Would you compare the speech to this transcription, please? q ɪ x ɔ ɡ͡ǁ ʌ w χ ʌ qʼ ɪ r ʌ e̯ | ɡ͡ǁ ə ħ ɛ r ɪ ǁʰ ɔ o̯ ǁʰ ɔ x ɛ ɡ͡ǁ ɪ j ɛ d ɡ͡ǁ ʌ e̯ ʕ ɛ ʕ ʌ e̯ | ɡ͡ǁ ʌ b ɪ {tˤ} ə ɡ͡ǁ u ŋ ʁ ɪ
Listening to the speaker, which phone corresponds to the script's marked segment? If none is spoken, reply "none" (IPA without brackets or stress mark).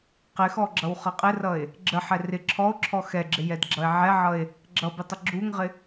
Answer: tˤ